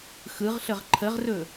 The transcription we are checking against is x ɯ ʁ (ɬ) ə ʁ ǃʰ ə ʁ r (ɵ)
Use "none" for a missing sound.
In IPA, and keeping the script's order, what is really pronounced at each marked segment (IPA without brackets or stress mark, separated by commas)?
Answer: ɬ, ɵ